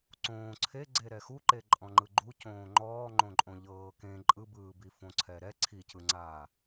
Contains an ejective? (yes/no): yes